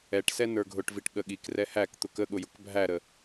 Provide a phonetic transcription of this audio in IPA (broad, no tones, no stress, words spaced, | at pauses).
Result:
ɛʈsɛ nə˞ɡʱʊʈviʈ ɠəɠikrɛ hækt̪ʊk əɠʊjʊk bʱæɾə